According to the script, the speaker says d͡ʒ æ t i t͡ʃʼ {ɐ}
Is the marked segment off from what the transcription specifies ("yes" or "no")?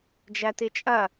no